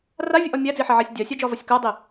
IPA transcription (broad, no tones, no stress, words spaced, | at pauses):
ravʲɨʔɒ mʲæd͡ziħaʕasʲ dʲasʲad͡ʒɒvɒsʲ kædˤi